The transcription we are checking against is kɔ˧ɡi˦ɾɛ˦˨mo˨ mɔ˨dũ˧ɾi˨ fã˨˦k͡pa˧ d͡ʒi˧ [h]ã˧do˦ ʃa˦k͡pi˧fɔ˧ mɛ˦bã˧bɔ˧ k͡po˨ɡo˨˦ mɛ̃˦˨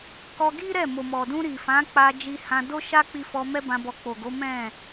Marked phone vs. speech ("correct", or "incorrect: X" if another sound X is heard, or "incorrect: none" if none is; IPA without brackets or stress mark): correct